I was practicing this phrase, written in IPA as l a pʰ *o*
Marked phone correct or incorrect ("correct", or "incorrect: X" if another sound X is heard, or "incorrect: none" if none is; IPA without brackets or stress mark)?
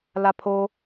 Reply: correct